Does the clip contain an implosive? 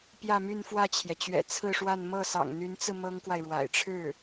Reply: no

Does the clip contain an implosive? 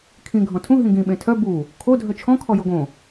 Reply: yes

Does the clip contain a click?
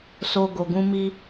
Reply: no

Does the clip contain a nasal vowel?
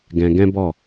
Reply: yes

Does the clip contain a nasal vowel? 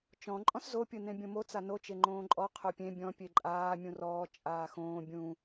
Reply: yes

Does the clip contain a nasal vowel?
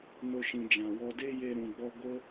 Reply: yes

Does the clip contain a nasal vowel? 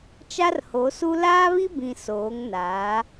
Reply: yes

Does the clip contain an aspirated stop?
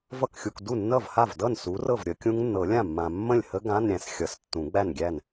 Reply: no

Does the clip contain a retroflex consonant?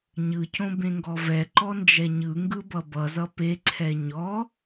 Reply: no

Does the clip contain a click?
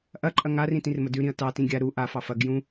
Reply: yes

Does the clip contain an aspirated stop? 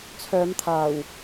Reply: yes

